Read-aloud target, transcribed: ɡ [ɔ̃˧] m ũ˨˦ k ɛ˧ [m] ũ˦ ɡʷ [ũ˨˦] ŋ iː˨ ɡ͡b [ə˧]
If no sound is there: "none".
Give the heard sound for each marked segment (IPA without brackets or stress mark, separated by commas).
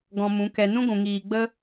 ɔ̃˧, n, ũ˨, ə˦